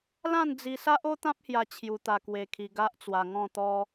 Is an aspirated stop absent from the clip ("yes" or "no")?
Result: no